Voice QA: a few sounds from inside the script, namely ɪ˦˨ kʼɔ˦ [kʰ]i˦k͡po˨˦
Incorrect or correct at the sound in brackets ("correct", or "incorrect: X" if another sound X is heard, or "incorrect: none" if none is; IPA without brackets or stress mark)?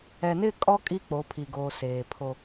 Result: incorrect: kʼ